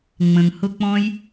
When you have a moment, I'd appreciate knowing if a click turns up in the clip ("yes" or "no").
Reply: no